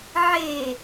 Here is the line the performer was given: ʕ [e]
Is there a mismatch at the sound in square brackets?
no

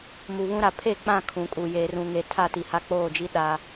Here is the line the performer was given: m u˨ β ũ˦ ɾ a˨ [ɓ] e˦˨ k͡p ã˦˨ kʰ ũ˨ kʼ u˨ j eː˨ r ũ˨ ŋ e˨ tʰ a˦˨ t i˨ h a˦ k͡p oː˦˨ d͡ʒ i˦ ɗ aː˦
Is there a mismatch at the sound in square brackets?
yes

